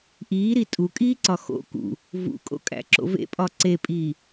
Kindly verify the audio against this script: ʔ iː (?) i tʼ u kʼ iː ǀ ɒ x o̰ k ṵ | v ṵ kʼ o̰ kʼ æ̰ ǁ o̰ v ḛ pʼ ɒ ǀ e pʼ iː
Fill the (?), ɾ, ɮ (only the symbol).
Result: ɾ